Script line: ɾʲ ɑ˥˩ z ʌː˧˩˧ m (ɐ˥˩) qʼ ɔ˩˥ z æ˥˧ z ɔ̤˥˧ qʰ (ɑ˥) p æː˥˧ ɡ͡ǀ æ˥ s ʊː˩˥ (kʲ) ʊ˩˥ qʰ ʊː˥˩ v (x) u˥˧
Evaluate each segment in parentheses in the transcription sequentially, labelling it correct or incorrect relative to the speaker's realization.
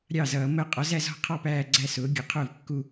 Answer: incorrect: ə˥˩, incorrect: ɑ˥˧, incorrect: ɡʲ, incorrect: kː

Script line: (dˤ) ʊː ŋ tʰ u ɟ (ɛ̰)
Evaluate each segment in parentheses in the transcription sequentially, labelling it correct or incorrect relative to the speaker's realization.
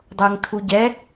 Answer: correct, incorrect: ɛ

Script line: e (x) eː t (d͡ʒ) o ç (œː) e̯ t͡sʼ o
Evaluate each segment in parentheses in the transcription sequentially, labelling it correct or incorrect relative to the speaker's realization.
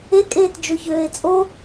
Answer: incorrect: kʼ, correct, incorrect: øː

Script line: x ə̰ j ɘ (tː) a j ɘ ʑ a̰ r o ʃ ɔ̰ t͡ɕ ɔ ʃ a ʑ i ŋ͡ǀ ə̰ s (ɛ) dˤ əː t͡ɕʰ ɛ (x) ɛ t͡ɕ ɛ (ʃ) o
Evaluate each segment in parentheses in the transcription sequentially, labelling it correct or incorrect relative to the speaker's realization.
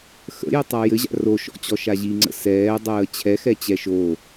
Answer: incorrect: tˤ, incorrect: ɛː, correct, correct

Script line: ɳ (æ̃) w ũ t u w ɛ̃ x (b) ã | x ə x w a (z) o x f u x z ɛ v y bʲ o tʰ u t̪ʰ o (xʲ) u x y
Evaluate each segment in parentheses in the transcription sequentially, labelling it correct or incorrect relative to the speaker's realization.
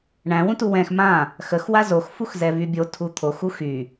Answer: correct, incorrect: m, correct, incorrect: x

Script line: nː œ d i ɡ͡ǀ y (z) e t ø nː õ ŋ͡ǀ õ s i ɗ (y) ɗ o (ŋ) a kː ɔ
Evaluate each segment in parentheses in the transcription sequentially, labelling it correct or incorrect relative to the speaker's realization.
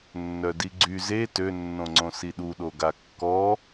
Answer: correct, incorrect: u, incorrect: ɡ

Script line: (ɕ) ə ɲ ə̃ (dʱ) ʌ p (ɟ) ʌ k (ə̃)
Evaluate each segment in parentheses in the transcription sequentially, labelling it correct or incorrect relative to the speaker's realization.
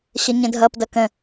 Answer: correct, correct, incorrect: d, correct

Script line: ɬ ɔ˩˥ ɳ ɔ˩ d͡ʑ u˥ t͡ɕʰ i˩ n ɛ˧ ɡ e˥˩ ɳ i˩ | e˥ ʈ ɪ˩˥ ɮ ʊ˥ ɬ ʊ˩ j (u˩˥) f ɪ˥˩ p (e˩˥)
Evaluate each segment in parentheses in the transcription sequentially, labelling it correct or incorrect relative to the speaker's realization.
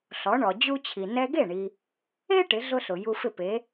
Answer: incorrect: u˧, correct

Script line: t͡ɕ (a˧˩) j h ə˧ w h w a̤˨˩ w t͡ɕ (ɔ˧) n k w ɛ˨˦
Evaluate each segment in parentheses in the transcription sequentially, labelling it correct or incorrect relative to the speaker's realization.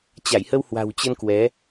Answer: correct, incorrect: ə˧

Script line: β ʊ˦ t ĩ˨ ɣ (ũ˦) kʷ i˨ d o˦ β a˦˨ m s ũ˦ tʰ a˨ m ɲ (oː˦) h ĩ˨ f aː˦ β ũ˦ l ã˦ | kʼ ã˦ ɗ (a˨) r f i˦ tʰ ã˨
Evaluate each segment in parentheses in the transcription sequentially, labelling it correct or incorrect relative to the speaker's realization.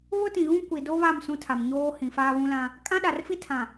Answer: correct, correct, correct

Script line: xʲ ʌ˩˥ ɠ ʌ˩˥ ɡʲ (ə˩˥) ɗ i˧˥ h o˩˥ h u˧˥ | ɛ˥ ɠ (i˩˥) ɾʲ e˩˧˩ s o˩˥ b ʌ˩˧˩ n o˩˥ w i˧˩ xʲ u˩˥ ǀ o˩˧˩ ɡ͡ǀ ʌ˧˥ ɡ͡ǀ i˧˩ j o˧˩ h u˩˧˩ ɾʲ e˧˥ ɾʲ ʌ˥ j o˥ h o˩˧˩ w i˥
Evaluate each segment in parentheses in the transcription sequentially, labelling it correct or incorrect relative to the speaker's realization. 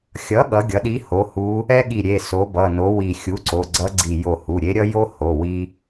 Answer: incorrect: ʌ˩˥, incorrect: i˧˩

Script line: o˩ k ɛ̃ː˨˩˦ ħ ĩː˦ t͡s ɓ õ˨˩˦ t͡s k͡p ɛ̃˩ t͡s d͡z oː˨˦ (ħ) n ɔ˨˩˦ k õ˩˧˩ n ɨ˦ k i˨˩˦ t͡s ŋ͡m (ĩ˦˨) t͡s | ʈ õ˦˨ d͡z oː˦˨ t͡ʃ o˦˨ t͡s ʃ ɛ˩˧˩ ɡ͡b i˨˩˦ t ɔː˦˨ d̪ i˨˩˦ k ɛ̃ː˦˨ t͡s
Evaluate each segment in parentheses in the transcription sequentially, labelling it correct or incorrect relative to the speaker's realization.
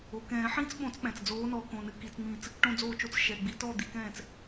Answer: incorrect: none, correct

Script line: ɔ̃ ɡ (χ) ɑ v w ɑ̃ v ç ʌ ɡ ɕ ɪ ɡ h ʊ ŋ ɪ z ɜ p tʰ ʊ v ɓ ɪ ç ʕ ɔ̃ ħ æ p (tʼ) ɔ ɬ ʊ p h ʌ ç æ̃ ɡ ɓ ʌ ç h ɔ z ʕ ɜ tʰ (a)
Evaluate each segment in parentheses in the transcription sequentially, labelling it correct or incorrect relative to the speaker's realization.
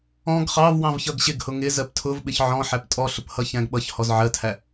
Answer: correct, correct, incorrect: æ

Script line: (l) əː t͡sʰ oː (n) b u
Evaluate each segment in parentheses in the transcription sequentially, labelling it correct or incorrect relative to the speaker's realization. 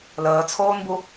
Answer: correct, correct

